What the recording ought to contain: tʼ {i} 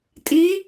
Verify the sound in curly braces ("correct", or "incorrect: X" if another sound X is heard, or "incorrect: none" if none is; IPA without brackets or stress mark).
correct